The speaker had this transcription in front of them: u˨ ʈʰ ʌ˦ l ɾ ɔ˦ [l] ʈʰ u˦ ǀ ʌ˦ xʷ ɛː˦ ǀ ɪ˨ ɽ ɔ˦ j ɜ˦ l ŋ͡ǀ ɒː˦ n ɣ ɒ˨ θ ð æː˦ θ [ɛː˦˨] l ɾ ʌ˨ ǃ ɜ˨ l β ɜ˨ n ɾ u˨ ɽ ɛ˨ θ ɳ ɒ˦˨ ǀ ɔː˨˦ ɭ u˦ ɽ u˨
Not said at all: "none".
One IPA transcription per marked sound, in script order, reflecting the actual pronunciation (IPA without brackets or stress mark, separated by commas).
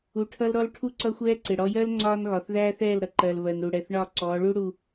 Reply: l, ɛː˦˨